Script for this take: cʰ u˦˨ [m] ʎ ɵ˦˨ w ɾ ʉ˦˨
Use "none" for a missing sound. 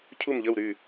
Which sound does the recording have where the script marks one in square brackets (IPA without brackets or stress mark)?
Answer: m